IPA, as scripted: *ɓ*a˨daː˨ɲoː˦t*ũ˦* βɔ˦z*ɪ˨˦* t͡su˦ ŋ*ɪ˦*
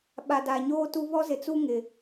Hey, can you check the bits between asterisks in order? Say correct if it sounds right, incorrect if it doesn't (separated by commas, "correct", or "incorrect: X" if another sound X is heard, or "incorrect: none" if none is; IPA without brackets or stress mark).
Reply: correct, incorrect: u˦, incorrect: ɪ˨, incorrect: ɪ˨